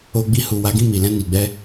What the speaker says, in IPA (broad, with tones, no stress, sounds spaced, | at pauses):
o˧ ɡ͡b i˧ h u˨ w a˨˦ ɡ ĩ˦˨ m i˨ l ɛ̃˧ n i˨ ɡ͡b ɛ˧